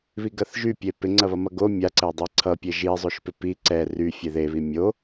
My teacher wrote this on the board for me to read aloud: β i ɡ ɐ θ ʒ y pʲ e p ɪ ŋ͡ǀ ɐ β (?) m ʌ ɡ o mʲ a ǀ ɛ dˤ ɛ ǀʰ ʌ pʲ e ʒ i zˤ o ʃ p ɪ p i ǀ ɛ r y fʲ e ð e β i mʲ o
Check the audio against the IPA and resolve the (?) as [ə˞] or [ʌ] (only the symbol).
ʌ